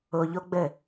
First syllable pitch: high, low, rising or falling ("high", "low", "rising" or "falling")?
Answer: low